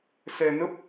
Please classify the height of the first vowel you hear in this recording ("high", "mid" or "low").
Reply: mid